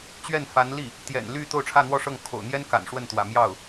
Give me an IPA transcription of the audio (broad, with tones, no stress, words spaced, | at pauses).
t͡ɕɥɛ˥˩nfa˧˥nli˥˩ | t̪jɛ̰˨˩nly˥˧ t̪o˥˧ʊ̯ʈ͡ʂʰä˥˧n̪wɔ˥˧ʂɤ˥˩ŋ kʰo̰˨˩ʊ̯n̪jɛ˥n ka̰˨˩n ʂwə˥˩nt̪wä̰˨˩mjɑ˥˩ʊ̯